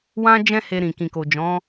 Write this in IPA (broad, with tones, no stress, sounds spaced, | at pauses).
w ã˧ d͡ʒ ɛ̃˦ h e˧ ɾ ĩ˨ k ĩ˨ k o˨ d͡ʒ ɔ̃˨˦